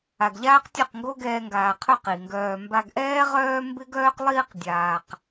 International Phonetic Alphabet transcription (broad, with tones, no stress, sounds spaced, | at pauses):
a˨ ɡ ʎ aː˦ q tʲ œ˦˨ q ŋ ɡ o˦ ɡ ɛː˧ ŋ ɡ aː˨ qʰ œ˦˨ q i˨ ŋ ɡ œː˧ m b a˧ ɡ ʔ ɛː˦ ʁ œː˦ m b ɪ˦ ɡ œː˦ q lˠ iː˦ q dʲ aː˨ q